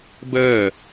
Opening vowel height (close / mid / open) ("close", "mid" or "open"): mid